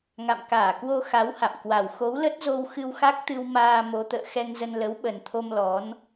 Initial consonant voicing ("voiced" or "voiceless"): voiced